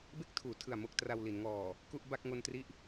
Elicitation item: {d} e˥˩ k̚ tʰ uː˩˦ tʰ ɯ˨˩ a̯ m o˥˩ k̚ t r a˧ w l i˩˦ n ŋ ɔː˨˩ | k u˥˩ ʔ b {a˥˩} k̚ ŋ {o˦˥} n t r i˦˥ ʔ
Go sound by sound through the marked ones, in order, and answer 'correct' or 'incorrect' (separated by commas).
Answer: incorrect, correct, incorrect